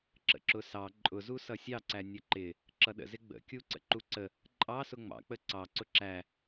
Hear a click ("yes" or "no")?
yes